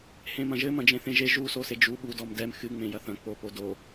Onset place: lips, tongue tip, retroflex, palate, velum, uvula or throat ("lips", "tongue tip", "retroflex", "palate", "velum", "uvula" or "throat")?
throat